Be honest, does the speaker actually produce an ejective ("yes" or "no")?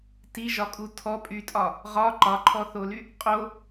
yes